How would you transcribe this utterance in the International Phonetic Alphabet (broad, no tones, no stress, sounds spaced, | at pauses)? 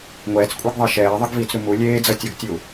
ŋʷ ɛː t͡s kʷʼ ɛ ɡ ðˤ e ʃ ɛː ðˤ ʌ ɡ v iː t͡s ɾ u m u lʲ eː d͡z ʌ tʲ o ɡ tʲ u